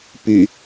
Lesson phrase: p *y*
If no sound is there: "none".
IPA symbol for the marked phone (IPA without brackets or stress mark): y